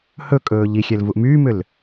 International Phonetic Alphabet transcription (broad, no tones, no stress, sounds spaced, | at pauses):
h ɵ kʼ ɵː ʎ i xʲ ɛ l v u ʔ m yː m ʏ l